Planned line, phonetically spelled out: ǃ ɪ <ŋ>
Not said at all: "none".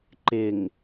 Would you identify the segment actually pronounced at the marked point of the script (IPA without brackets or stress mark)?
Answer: ŋ